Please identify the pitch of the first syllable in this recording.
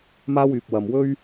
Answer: high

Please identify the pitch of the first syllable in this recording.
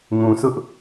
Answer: low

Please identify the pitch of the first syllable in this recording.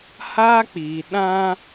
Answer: high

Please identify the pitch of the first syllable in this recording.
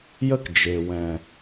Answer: high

